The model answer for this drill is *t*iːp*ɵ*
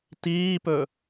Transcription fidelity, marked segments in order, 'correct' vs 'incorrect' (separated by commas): correct, correct